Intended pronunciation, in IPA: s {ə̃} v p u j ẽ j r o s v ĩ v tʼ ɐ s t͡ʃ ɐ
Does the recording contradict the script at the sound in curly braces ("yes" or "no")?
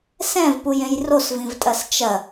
yes